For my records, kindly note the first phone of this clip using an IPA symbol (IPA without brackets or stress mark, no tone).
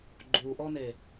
ɡ͡ǃ